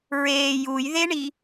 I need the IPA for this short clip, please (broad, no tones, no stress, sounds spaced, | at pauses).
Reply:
ɹ eː j u j ð e ɳ i